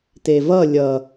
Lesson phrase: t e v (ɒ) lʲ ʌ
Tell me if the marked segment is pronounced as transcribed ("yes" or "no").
no